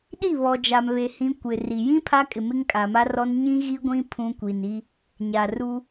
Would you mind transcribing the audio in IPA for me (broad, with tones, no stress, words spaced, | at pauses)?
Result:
ɗi˦˨βɔ˨d͡ʒa˨mβe˨ hĩ˦kʷɪ˨ri˨ jĩ˦ pʰa˦kʼɪ˨mɪ˦ŋ kʼa˨ma˦rɔ˦n ɲĩ˦ɣi˦ɡʷĩ˦ pʰũ˦kʷi˨ni˦ | ɲa˨ru˦